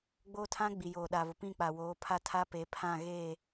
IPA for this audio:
ɡ͡b oː˦ tʰ ã˦ ɡ͡b i˨ j oː˨ ɗ a˨ v ʊ˨ p ĩ˦˨ k͡p a˨ w oː˨˦ pʰ a˦ tʰ a˦ p e˨˦ pʰ ã˦˨ ɣ eː˦˨

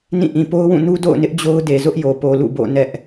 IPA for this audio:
n ĩ˦˨ ʔ ĩ˨ p o˦ ʊ̯ w ũ˦˨ n u˦ d o̰˦˨ ʊ̯ n ɪ˦ ʔ d͡ʑ o˦ ʊ̯ d e˨ z ʊ˦ ʔ j o˨ p o˨ l ṵ˦˨ b o̰˦˨ n ɛ˦ ʔ

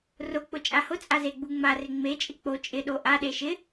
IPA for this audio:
r ʊ k͡p ʊ t͡ʃʼ a h ʊ t͡sʼ a z e ɡ͡b u ŋ͡m a r ɪ ŋ͡m e t͡ʃʼ ɪ k͡p o t͡ʃʼ ɪ ɗ o ʔ a ɗ e ʃ ɪ

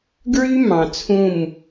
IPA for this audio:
ɡ ɹ y˦ m ɑ̃˨ t͡sʰ ũ˦˨ m

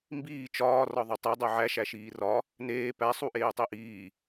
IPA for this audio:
m b iː t͡ʃ ɒː r ɒ ðˤ u tˤ i dˤ o ʕ æ ʃ æ ʃ iː r ɒ | n eː p æ sˤ u ʔ eː tˤ i ʔ iː

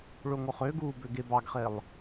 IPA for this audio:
ɭ o ŋ o χ ø ɡ uː b ø ɡ e b ɑ ɡ χ e lˠ

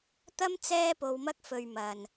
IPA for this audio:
t̪ ɐ˥ m t͡s ɛː˥ p o˧ w m ɐ˥ k̚ f ɵ˧ ɥ m ɐ˨ n

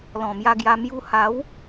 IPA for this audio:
l ɔ̃˨˩ m j a˧ ɡ j a˧ m j u˧ h a˨˦ w

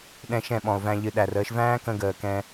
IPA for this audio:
ɗ ɛ̃˧ ʃ ɛ̃˦˨ ɓ ɔ̃˨ o̯ v æ̃˧ ʎ ɨ˨ ɗ æ˨ r əː˧ ʃ v æ̃ː˦ k ə̃˧ ɡ əː˨ k ɛ̃˧

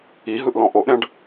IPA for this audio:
i ɦ ɯ ʔ l ɔ̃ ʔ o ʔ ɾʲ ã ɖ

